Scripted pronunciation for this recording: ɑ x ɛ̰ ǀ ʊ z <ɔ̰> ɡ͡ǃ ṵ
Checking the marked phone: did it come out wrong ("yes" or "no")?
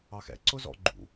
no